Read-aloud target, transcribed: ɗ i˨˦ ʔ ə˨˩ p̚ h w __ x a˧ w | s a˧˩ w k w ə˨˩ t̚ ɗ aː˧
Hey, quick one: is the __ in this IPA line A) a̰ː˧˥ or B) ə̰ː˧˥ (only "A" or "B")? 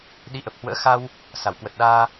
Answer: B